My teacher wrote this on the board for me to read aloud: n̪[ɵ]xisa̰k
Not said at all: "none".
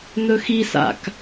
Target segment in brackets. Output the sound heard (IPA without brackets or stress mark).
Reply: ɵ